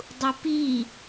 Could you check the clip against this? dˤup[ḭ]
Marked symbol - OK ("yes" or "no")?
no